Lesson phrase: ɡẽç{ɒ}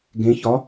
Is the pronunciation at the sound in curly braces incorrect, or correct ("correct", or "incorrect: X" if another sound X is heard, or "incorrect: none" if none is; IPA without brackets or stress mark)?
correct